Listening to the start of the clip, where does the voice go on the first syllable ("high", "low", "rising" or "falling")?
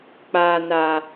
low